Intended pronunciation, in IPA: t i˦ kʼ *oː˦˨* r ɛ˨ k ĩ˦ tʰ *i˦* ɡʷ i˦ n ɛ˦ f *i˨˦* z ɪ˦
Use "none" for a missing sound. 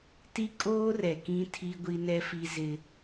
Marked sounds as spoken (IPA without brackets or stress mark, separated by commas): oː˦, i˦, i˦